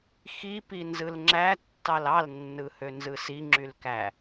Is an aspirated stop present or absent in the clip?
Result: absent